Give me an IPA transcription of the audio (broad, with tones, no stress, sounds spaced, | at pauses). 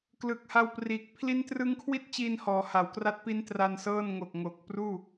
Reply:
k l ɯ˨˩ k̚ h a˧ w p r iː˨˩ k̚ pʰ l i˦˥ n t r ɯ˦˥ ŋ kʰ w i˥˩ t̚ t͡ɕ i˧ n h ɔː˩˦ h a˩˦ w k r a˥˩ t̚ p i˦˥ n t r a˧ n s ɤː˥˩ n ŋ o˨˩ k̚ ŋ o˨˩ k̚ p r uː˥˩